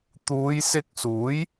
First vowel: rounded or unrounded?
rounded